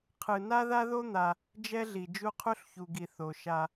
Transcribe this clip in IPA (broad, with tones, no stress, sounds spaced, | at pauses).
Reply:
qʰ ɯ˨ n a˦ ð a˦ ð o˦ n̪ a˧ | d͡ʒ ɛ˦ ɮ i˨ d͡ʒ u˧ qʰ u˦ ɬ ç u˨ ɡ i˨ θ o˨ ʃ a˧